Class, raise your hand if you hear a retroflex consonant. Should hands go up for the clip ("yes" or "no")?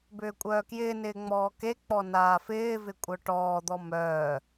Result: yes